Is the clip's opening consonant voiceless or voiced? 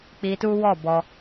voiceless